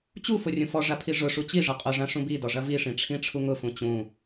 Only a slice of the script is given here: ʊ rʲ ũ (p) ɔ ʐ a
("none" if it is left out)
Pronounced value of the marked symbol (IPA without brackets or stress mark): f